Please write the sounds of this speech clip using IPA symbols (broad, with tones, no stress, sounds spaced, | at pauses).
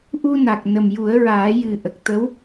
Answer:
ʔ u˧ n a˨˩ k̚ n ə˨˩ m j u˨˩˦ ə̯ ɹ aː˨˩˦ j ɨ˨˩ ʔ ə˨˩ k̚ t̪ ə˧˥ w